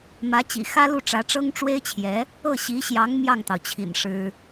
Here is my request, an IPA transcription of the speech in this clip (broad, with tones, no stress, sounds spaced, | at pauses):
m ä˧˥ t͡ɕ ḭ˨˩ x ä˥ l u˥˩ ʈ͡ʂ ä˧˥ ʈ͡ʂ ɤ˥ ŋ ʈ͡ʂ w e˥ ɪ̯ t͡ɕʰ j ɛ˧˥ | ɤ˥˩ ɕ i˧˥ ɕ j ɑ˧˥ ŋ m j ɑ˥˩ ŋ t̪ ɑ˩ ʊ̯ t͡ɕʰ ḭ˨˩ n ʂ ɻ̩˥